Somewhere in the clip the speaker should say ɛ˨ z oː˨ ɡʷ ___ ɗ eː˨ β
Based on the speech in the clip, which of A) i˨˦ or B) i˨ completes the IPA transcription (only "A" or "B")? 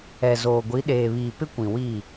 A